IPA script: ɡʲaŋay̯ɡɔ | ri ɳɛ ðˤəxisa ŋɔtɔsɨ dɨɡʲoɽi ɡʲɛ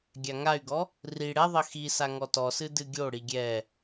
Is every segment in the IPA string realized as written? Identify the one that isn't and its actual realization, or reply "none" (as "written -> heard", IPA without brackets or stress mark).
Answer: ɳ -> ɽ